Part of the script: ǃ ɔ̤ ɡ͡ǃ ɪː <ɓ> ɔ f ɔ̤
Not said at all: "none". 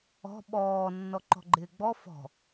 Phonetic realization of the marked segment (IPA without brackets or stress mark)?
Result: ɡ͡b